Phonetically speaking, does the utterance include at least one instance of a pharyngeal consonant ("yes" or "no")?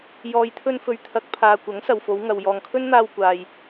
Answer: no